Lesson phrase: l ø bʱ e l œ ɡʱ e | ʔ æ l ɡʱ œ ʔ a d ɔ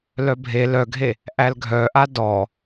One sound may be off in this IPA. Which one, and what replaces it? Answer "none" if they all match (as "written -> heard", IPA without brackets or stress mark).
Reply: ø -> œ